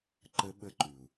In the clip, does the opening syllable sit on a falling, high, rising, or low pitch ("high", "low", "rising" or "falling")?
high